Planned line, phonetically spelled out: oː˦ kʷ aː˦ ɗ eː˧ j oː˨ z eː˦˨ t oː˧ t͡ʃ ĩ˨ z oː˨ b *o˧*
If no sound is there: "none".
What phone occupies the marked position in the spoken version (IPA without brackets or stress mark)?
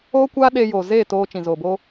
oː˧